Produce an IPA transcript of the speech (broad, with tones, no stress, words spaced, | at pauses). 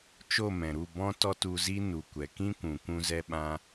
t͡ʃo˦˨mɛ̃˨ɾu˦˨ bɔ̃˦ tɔ˦tu˧zi˦ nu˨kʷɛ˨kĩ˦kʷũ˨ kʷũ˧zɛ˧ɓã˧